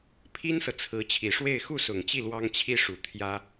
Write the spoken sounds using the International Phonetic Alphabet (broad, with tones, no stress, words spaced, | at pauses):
pʰi˥nsɤ˨ t͡sʰɹ̩˧˥ t͡ɕʰi˨˩ʂwe˥˧ɪ̯ xu˥˩sʊ˨˩ŋt͡ɕi˥˩ lwɑ˥ŋt͡ɕʰi˥ʂu˨˩ t̪ʰjä˥